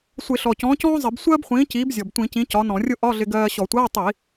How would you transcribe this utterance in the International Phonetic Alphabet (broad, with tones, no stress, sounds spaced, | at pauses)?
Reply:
sʷ ɪ˧˩˧ ɬ ɔ˨˩ c ɔ̃ː˨˥ c ɔ̃ː˥ zˤ ɪ˧˩˧ b sʷ ɜː˥ b χʷ ĩː˨˥ c iː˨˥ b zʲ ɔ˨˩ b tʷ ĩ˧˩˧ c ĩ˨˥ c ɒ˨˥ n ɔ̃˧˩˧ rʲ ʊ˥ ʔ ɒ˧˥˧ ɮ ɪ˧ ɡ ɜː˧ ɕ ɔ˧˩˧ tʷ ɜː˧˥˧ tˤ iː˧˩˧